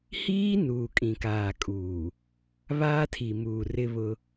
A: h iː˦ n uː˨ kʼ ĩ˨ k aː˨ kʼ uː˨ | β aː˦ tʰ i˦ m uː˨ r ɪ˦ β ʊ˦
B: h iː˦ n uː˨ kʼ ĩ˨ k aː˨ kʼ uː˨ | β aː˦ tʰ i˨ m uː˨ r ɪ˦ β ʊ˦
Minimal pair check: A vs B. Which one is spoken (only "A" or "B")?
B